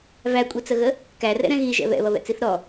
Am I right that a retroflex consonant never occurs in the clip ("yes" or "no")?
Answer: yes